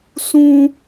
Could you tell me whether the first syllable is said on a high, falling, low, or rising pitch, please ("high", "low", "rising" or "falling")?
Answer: high